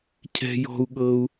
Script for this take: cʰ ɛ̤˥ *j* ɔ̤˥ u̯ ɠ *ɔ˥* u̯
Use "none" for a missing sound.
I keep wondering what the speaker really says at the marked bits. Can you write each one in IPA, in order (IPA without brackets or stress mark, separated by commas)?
j, ɤ˥